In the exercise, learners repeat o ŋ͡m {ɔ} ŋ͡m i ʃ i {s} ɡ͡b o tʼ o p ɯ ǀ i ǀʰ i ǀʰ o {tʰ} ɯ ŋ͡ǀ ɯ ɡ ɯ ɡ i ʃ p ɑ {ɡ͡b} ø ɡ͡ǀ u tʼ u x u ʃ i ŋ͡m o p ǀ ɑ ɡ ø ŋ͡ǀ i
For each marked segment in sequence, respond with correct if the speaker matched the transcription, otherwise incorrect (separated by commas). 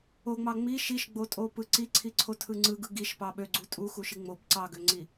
incorrect, incorrect, correct, incorrect